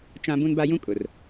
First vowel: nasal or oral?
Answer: nasal